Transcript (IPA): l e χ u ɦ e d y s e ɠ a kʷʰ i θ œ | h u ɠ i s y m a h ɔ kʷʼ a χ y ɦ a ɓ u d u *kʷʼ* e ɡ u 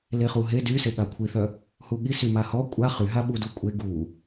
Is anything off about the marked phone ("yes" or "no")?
no